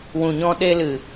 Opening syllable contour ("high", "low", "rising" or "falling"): low